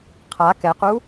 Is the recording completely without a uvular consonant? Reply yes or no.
no